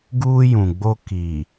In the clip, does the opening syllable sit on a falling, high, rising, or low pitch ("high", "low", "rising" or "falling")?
high